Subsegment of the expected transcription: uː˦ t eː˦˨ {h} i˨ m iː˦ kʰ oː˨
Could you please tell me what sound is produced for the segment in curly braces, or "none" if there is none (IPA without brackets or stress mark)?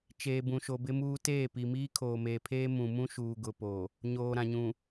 p